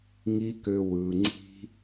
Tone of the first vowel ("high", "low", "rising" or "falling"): high